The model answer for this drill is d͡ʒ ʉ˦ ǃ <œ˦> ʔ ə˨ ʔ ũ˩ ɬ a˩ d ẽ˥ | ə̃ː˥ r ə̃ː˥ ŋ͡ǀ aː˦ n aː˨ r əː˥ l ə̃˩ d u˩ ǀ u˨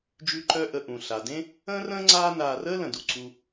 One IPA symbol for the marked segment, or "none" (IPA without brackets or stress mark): œ˦